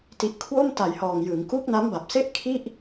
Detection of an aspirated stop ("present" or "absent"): present